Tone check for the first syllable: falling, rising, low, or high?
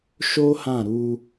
high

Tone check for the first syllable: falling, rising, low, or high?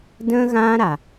high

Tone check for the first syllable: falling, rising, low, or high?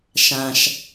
low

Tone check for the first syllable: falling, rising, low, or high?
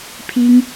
high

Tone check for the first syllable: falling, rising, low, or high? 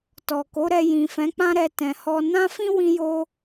low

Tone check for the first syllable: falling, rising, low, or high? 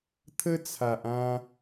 high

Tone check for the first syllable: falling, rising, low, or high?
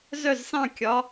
falling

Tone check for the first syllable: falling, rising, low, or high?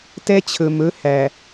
high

